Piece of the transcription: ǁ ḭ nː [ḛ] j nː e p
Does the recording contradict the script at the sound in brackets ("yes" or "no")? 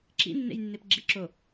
no